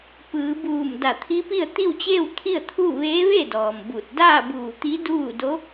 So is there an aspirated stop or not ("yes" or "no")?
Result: yes